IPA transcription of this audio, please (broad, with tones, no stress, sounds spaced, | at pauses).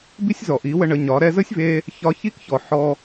b i˦ sʲ z ɔ˨ ʔ i˨˦ w ə˧ ɳ ə˨˦ ɲ ɒ˨˦ ɾ ɛ˧ z ə˦ sʲ v e˧ | ç ɒ˧ ç i˦ k ç ɔ˨ ħ ɔ˧